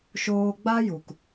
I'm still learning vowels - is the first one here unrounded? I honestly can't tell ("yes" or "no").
no